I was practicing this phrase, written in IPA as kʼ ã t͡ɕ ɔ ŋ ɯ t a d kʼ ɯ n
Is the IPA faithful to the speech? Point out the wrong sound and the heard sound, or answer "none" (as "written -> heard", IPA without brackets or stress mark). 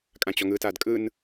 none